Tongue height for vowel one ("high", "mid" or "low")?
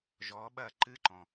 mid